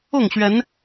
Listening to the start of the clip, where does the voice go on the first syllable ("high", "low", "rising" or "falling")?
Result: falling